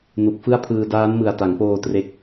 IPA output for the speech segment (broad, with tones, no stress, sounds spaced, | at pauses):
n u˨˩ k̚ f ɯ˥˩ a̯ pʰ ɯː˧ d aː˦˥ n m ɯ˨˩ a̯ t a˩˦ ŋ p oː˧ t r e˦˥ k̚